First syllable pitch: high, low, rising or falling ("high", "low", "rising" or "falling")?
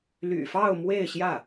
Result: low